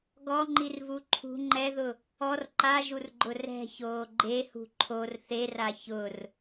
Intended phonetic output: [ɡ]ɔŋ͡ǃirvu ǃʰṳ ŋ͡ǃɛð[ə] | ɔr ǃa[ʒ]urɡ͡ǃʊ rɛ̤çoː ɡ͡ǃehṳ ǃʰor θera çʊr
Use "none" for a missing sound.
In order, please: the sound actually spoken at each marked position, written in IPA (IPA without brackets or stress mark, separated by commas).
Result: ɡ, ʊ, ʒ